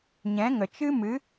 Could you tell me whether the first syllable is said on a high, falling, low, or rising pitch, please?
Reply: rising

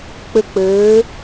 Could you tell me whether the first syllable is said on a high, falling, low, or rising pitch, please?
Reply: high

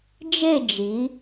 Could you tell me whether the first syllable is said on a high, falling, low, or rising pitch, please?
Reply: falling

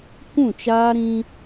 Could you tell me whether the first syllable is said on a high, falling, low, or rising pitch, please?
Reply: falling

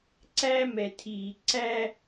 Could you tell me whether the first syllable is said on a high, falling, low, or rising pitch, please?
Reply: high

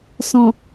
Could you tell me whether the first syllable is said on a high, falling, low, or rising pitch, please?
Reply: low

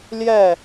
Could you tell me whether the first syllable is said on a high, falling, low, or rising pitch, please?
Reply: falling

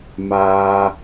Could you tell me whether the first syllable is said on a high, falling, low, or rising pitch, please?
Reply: high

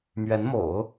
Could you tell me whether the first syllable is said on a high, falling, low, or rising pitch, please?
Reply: rising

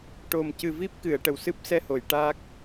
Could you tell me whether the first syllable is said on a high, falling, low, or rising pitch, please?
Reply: low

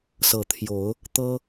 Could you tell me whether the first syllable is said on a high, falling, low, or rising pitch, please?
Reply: low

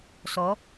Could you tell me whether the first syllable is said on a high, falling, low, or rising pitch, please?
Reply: rising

